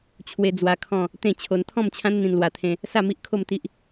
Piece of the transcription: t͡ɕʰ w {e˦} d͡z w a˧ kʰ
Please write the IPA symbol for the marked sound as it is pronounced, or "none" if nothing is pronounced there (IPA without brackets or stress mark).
e˧